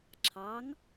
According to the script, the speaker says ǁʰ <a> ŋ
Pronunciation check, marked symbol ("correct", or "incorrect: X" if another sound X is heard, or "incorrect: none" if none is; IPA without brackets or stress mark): incorrect: ɑ